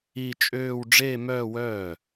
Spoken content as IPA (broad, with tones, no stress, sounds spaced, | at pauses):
i˥˧ t͡ʃʼ øː˥˧ w ɖ͡ʐ eː˥˧ m œː˥˧ w œː˥˩